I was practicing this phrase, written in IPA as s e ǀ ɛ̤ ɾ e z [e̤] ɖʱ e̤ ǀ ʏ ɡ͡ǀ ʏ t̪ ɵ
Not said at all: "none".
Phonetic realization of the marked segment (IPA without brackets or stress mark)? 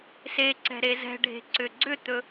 ɛ̤